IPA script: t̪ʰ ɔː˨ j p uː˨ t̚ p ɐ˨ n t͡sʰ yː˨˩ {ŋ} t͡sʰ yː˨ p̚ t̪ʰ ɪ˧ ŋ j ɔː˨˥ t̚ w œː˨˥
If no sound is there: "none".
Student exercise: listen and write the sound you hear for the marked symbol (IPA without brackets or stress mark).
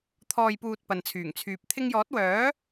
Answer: ŋ